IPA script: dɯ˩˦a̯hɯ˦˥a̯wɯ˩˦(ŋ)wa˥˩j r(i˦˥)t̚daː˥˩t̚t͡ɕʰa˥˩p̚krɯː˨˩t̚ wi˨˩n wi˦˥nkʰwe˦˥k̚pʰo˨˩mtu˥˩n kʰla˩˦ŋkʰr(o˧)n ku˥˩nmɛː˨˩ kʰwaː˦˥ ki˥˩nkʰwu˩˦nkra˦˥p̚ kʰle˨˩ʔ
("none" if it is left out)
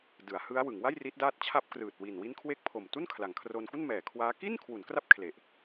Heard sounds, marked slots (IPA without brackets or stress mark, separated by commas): ŋ, i˦˥, o˧